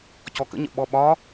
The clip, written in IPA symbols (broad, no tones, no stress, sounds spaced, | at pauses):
c ɔ k ə̰ ɲ ə̰ ɓ ɔ ɓ ɒ